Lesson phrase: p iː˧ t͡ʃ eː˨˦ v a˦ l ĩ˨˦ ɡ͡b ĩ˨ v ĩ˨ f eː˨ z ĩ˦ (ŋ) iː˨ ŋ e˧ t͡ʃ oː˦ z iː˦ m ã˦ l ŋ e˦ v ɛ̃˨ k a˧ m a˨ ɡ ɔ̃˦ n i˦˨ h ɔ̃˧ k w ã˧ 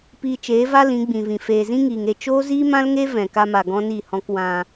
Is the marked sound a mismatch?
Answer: no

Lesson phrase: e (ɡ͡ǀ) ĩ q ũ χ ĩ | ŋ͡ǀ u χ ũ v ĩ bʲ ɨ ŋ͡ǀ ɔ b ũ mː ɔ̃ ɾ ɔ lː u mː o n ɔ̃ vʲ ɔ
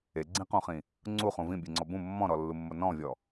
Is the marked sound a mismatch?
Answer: no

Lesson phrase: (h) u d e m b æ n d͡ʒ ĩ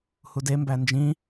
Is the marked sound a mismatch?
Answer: no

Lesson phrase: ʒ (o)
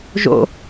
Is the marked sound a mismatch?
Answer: yes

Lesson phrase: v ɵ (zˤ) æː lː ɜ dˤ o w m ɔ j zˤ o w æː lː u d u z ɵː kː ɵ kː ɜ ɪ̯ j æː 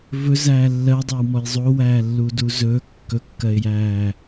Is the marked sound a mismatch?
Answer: yes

